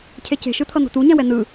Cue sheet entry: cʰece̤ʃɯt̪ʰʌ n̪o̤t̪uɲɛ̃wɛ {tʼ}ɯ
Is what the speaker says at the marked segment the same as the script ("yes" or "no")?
no